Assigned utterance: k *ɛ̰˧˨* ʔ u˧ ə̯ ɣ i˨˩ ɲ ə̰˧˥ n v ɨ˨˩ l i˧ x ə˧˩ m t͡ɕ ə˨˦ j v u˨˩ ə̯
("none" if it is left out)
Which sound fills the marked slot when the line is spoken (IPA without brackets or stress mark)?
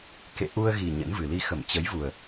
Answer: ḛ˧˨